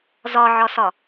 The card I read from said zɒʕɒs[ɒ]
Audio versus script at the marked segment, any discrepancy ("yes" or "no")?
no